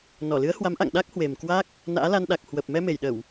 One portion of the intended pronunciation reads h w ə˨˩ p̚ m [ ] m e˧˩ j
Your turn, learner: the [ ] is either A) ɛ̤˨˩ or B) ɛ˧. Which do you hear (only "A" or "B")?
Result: B